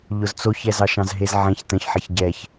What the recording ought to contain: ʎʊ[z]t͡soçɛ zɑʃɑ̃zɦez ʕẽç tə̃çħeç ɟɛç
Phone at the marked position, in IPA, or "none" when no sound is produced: z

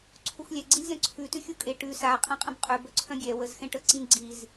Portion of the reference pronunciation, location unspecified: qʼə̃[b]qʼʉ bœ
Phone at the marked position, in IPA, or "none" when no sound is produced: b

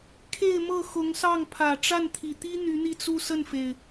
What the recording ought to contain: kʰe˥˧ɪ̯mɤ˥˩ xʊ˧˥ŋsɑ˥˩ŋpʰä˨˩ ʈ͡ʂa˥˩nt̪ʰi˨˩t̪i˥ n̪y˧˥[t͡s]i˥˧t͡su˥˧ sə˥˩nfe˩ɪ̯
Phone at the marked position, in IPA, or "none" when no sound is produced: n̪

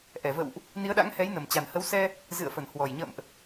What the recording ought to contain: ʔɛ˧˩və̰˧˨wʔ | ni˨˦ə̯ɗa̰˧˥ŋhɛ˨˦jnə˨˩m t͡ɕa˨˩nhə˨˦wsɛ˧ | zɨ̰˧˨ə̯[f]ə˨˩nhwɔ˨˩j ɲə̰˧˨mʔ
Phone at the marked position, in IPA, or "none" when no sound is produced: f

